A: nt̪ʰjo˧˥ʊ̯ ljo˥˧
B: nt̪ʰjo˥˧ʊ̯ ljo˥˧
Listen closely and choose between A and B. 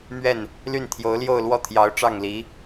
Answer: A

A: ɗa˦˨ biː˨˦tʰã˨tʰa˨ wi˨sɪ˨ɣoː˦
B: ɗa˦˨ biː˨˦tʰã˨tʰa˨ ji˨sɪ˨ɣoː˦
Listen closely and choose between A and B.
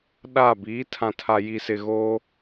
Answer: B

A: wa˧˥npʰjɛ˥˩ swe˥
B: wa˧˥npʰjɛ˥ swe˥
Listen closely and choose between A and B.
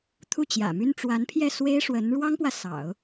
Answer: A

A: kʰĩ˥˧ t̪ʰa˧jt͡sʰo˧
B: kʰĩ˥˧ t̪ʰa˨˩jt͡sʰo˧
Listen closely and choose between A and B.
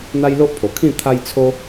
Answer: A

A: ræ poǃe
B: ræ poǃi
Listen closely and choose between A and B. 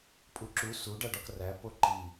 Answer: B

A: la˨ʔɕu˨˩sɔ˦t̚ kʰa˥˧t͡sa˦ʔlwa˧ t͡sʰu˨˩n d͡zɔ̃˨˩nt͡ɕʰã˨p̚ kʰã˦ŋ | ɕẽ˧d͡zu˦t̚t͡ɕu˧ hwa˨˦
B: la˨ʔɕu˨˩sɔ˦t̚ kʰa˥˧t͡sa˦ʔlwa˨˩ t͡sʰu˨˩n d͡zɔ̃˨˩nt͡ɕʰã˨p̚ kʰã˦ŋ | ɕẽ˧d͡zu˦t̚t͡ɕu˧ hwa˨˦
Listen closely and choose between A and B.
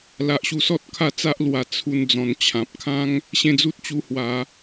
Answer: B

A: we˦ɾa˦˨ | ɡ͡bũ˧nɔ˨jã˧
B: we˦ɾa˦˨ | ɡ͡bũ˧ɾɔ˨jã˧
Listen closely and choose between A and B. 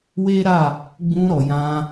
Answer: B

